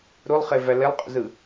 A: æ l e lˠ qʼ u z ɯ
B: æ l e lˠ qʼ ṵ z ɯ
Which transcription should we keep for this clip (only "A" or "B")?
B